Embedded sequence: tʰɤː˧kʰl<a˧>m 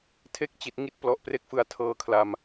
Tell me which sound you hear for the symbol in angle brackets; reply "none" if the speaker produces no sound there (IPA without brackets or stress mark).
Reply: a˧